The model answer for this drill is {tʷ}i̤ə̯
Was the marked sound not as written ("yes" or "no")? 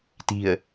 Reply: yes